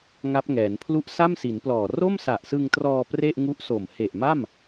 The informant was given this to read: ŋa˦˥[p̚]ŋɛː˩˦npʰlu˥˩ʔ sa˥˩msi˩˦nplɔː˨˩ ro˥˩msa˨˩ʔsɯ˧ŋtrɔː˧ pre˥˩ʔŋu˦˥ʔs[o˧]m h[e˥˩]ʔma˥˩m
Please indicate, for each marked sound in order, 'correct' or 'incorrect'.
correct, incorrect: o˨˩, incorrect: e˨˩

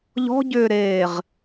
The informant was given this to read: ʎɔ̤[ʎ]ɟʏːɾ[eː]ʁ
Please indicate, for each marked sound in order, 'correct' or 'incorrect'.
incorrect: none, correct

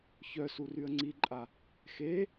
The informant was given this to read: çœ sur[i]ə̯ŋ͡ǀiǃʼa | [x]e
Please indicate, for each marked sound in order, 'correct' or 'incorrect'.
incorrect: y, correct

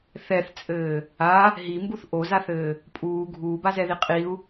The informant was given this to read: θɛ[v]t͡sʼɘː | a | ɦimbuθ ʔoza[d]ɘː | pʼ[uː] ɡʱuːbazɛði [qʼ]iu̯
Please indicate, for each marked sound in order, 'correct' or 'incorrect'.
incorrect: θ, incorrect: θ, correct, correct

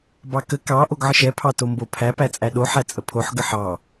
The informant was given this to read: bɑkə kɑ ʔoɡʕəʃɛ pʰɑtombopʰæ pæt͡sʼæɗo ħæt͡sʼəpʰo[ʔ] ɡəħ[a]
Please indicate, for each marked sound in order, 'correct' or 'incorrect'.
incorrect: ħ, incorrect: ɑ

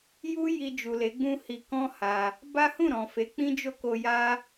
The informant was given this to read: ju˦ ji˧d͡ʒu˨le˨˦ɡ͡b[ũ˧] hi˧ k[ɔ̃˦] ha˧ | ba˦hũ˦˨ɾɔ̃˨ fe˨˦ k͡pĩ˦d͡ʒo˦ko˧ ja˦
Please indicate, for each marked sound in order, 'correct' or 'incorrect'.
incorrect: ũ˦, correct

